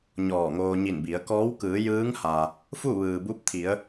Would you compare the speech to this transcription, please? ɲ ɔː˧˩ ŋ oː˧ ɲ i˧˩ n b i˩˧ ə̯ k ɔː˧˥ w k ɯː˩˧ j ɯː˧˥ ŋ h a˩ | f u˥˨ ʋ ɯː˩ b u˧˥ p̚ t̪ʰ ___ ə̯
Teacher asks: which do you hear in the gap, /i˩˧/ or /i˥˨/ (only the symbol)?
i˩˧